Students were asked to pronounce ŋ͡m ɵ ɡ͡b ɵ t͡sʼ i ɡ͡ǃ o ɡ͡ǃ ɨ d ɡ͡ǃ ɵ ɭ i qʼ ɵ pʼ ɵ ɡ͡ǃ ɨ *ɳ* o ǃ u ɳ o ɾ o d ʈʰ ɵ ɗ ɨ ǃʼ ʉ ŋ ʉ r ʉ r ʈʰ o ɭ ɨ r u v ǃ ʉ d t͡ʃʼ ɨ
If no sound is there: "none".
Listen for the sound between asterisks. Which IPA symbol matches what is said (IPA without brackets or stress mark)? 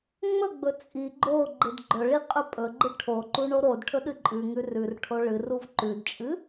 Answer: ʈʰ